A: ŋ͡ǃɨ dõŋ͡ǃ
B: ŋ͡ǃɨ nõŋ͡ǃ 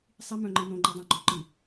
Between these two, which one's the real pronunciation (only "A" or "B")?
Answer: B